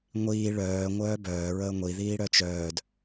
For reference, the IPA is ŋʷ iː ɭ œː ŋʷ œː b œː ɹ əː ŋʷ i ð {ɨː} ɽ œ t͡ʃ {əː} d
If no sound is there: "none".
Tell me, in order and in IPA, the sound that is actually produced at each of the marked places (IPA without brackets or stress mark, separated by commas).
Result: iː, œː